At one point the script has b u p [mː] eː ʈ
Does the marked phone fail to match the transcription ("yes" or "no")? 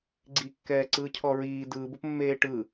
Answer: no